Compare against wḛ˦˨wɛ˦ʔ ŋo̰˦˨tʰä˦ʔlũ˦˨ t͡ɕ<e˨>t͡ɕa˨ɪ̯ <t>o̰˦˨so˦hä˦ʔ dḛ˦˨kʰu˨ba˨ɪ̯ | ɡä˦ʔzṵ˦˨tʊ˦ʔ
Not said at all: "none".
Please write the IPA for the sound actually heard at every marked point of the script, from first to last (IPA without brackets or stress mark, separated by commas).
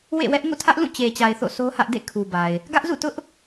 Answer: e˨, θ